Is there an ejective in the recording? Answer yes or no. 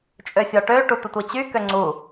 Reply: yes